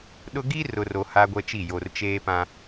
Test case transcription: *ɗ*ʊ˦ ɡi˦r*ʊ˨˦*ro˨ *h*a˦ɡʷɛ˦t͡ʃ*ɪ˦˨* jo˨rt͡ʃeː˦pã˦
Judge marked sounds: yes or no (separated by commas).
yes, no, yes, no